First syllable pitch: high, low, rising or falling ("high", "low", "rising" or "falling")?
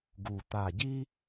low